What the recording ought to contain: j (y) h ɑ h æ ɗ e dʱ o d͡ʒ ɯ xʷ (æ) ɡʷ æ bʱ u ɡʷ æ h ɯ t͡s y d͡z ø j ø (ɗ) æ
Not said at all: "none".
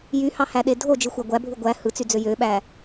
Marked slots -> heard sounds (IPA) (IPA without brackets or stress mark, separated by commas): y, æ, ɓ